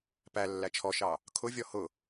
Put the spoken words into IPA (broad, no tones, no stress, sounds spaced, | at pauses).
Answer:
p æ lː æ t͡ʃʰ ɔ ʃ ɑ | kʰ ʊ vʲ ɔ h ʊ